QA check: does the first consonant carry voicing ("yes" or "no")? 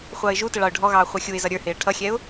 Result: no